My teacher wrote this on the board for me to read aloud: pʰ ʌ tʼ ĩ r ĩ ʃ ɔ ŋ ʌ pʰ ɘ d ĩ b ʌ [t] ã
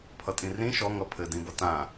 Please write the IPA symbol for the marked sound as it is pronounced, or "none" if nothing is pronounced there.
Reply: t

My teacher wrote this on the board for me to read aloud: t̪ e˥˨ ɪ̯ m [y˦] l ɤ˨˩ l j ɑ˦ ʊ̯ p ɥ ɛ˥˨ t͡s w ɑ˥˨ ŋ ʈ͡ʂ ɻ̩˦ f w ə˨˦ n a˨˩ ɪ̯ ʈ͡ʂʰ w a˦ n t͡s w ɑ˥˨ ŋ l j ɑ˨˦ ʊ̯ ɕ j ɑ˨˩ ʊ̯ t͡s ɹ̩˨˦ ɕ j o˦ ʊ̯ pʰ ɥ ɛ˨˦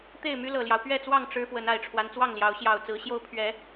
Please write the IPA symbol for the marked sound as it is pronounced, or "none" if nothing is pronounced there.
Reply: y˦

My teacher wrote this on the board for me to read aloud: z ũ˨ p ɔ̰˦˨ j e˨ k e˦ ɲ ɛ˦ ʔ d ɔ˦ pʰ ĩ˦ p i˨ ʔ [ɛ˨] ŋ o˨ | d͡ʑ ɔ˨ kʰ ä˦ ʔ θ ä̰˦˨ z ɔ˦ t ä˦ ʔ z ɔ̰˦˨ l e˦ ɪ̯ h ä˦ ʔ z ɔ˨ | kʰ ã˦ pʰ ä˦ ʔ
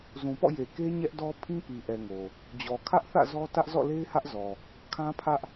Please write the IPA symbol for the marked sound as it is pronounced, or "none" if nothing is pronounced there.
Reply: ɛ˨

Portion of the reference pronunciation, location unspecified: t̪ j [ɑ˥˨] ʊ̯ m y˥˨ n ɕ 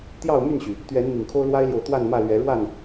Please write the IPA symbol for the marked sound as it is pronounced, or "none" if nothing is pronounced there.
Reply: ɑ˥˨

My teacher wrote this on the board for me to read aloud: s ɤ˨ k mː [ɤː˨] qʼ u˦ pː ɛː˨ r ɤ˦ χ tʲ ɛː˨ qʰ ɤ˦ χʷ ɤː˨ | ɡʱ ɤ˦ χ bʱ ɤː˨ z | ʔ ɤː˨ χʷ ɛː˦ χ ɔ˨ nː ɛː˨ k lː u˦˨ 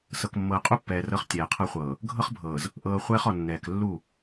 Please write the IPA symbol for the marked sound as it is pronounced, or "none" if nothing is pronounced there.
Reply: ɤː˨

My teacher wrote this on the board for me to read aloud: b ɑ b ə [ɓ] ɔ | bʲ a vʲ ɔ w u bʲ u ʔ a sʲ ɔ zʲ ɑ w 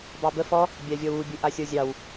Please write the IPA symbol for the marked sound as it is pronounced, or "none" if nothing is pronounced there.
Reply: f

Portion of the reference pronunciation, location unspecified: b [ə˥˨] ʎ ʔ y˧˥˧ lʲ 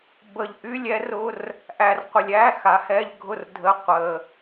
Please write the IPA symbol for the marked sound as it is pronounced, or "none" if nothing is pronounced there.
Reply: ə˨˩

